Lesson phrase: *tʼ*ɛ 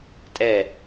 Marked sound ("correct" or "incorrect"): correct